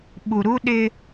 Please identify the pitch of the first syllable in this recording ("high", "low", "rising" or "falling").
low